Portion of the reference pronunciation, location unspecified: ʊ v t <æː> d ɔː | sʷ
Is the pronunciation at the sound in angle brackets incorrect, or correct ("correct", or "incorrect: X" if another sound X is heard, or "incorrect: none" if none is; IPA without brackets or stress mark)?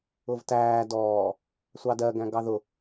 correct